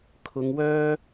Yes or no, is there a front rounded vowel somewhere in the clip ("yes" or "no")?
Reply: yes